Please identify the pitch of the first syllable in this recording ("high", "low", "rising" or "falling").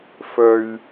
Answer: low